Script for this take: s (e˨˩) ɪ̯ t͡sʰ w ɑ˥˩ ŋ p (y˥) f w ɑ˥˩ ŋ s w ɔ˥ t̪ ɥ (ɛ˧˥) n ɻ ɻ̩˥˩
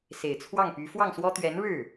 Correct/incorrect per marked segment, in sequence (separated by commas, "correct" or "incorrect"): correct, incorrect, correct